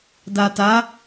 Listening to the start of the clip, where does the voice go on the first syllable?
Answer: low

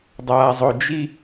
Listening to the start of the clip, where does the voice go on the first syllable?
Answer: low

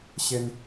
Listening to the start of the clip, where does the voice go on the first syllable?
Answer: high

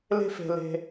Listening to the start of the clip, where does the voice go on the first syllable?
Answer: falling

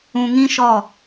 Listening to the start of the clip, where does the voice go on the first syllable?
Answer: low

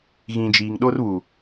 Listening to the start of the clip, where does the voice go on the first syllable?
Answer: low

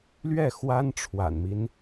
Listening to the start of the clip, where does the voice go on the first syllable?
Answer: falling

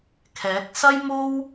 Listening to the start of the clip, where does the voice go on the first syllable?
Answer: rising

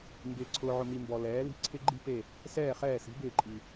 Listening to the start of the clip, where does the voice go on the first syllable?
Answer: low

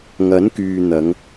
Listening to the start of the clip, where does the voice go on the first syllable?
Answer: rising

